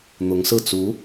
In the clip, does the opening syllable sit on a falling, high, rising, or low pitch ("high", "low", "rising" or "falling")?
rising